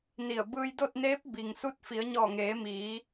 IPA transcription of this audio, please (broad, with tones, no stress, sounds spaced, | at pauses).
n i˧˩ ə̯ b ɯː˧ j d o˥˨ t̚ n eː˧˥ p̚ b i˩ ŋ s u˧ t̚ f i˩˧ ə̯ ɲ ɔː˧˩ ŋ eː˩˧ m iː˩˧